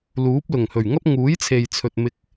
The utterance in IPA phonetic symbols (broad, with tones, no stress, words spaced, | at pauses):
luː˨˥p̚ lʊ˨˩ŋhɵ˨˩ɥŋɐ˥p̚ ŋuː˨˥jt͡sʰe˨jt͡sʰɵ˨t̚ mɪ˧k̚